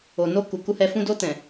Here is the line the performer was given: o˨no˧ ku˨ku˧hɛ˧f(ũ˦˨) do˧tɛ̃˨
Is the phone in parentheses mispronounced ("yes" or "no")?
yes